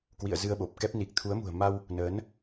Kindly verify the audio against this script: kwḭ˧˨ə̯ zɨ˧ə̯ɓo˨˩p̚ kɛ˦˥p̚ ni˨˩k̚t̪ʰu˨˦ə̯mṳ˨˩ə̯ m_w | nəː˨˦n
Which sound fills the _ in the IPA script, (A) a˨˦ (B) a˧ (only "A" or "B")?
B